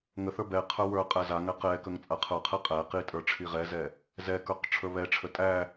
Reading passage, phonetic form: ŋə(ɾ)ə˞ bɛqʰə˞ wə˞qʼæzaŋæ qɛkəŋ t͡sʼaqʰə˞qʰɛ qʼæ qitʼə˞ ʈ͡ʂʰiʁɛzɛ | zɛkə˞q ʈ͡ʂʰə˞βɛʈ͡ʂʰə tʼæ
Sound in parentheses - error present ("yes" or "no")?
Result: yes